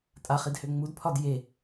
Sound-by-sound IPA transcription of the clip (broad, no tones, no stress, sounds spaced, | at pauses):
tʼ a χ i d h ø ŋ͡m u d pʰ ɒ d j e